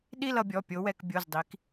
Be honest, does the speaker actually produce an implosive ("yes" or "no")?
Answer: yes